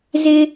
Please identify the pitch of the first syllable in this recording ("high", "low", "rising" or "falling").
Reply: high